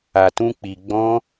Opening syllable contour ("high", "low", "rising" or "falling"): low